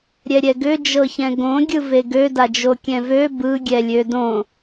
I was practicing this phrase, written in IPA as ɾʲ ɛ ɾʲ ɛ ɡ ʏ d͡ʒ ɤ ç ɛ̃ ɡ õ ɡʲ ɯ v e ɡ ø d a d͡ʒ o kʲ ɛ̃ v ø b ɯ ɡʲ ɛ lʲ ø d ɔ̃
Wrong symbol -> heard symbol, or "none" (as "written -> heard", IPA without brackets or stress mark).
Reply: ɔ̃ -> õ